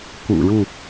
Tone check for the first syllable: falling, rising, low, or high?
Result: low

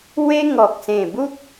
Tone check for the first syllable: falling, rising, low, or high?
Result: high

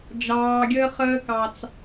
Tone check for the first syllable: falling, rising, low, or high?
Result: low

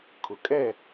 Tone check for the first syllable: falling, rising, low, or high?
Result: low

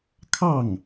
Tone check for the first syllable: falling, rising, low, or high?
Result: falling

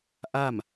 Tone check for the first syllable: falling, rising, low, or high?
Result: falling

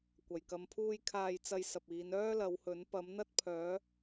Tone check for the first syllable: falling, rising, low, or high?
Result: low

